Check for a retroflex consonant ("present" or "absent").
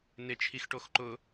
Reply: present